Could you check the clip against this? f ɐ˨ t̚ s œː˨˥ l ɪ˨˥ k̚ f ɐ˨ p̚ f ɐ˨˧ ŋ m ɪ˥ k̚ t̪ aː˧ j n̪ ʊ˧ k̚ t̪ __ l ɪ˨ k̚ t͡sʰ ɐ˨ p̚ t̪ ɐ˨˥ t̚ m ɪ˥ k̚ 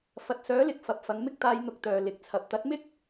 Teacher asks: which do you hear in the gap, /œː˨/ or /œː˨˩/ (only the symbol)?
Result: œː˨